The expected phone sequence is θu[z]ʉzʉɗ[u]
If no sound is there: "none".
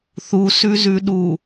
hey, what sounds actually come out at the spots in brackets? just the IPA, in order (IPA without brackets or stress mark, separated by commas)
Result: s, u